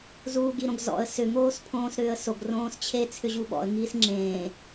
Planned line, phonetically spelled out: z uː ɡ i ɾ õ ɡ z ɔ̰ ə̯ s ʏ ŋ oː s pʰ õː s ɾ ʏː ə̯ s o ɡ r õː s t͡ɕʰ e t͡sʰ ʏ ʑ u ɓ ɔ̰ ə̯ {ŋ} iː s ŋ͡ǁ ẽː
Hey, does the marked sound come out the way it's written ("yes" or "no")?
yes